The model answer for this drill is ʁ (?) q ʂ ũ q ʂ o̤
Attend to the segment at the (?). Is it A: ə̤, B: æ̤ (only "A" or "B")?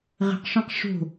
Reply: A